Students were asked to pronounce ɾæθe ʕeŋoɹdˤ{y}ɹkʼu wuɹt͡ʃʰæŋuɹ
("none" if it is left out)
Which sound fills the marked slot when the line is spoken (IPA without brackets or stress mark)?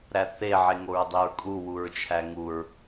y